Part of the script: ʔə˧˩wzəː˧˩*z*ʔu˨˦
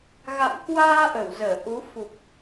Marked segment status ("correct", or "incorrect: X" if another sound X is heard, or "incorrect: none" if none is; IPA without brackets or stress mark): incorrect: none